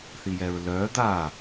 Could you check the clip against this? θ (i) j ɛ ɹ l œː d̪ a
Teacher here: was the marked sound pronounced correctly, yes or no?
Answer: yes